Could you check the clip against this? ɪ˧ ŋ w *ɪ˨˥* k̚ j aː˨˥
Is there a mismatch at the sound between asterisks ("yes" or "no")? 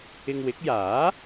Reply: no